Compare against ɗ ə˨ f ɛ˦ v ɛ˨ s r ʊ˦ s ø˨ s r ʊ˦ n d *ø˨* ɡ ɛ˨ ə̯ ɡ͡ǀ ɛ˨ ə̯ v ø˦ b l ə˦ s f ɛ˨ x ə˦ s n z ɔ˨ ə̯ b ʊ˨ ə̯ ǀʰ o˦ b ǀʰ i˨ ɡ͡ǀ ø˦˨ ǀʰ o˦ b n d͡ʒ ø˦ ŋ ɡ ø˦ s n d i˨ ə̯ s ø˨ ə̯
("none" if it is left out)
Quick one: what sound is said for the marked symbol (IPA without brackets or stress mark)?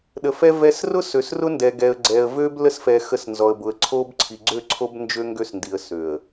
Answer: ɛ˨